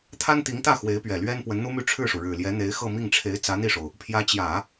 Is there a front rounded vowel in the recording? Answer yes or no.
yes